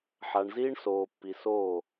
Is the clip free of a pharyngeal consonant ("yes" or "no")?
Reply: no